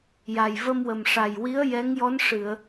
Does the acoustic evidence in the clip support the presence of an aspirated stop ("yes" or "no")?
no